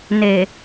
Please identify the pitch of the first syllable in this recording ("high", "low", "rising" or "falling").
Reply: low